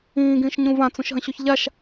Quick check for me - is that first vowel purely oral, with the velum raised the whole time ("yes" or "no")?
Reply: no